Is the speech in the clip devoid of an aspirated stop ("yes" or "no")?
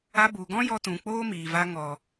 yes